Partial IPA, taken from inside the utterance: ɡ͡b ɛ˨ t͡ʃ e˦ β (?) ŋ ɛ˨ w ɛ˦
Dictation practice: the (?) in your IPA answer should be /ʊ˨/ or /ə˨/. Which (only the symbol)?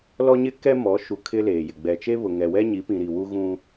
ʊ˨